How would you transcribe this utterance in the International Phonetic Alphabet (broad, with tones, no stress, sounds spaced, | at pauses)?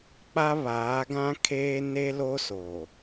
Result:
k͡p a˦ β aː˨˦ ɡ ã˦ kʰ eː˦ n e˦ l o˦ s oː˨